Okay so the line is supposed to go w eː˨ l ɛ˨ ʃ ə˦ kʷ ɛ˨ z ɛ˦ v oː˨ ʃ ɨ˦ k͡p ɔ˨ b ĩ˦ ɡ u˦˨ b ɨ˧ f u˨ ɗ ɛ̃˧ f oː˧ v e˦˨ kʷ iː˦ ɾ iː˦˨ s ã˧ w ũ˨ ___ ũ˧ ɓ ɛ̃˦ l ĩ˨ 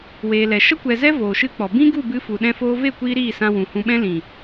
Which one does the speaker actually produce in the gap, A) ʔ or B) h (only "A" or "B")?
B